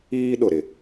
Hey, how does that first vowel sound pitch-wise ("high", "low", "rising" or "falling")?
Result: high